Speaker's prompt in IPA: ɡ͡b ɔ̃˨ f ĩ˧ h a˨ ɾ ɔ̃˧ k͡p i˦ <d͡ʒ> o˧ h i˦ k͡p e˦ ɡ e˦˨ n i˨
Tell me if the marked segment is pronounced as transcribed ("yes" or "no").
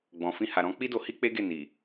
no